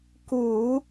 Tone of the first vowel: low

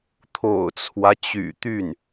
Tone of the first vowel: low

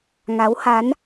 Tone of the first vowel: rising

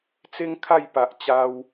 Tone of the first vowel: high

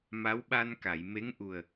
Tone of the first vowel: rising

